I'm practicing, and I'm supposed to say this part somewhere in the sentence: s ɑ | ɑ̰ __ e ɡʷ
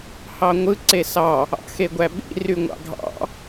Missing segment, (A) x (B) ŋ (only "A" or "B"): A